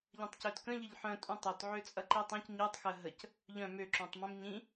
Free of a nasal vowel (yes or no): no